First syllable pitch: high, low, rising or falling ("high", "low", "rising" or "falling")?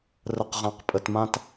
low